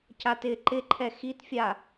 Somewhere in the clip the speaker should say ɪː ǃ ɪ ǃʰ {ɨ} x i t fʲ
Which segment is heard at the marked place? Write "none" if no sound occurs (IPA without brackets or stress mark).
ɛ